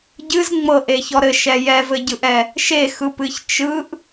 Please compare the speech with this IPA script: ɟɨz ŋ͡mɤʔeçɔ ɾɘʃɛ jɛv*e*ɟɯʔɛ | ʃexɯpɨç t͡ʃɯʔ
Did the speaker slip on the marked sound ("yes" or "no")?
yes